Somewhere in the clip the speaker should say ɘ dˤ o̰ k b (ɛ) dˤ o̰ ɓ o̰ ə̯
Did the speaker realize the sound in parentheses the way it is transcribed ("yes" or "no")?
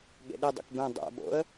no